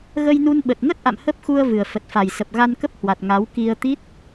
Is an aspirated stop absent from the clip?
yes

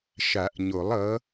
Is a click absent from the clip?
yes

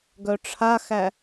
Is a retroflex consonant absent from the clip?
no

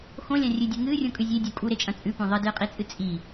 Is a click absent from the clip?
yes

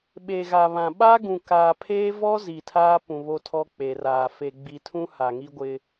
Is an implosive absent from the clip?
no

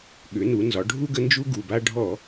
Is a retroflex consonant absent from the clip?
no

